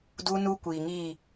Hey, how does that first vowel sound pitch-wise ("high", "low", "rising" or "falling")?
high